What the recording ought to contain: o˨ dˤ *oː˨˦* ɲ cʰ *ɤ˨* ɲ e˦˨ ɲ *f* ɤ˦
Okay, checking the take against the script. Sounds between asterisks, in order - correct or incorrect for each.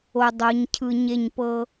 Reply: incorrect, incorrect, incorrect

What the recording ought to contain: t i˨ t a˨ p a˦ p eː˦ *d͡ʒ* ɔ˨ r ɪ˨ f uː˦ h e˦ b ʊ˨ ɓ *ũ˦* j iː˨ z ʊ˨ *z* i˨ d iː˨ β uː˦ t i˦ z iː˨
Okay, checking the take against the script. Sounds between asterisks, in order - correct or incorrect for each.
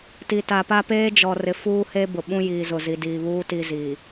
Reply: correct, correct, correct

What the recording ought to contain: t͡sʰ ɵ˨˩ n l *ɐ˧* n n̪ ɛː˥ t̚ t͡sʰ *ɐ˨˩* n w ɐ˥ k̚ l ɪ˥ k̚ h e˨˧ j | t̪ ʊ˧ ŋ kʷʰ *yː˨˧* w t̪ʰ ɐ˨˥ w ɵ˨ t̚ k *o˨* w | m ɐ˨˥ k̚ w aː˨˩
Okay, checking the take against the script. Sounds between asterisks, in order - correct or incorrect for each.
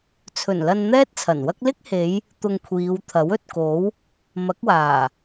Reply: correct, correct, incorrect, incorrect

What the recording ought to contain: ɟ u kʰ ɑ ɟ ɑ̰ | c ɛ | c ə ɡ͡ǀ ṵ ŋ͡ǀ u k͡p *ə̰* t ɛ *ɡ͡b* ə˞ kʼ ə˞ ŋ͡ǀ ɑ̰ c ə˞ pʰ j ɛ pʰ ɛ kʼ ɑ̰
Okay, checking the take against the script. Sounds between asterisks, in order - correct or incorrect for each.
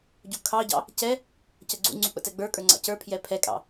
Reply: correct, correct

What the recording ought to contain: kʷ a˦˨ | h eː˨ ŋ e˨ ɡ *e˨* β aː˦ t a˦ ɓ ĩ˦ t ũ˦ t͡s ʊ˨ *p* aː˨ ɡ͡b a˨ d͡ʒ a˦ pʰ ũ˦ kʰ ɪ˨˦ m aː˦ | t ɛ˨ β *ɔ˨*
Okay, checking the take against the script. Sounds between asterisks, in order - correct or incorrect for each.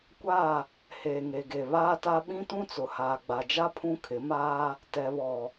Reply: correct, incorrect, correct

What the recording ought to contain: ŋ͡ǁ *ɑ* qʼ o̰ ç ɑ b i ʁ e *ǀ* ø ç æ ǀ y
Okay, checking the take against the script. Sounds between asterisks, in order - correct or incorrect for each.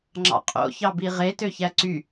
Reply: incorrect, incorrect

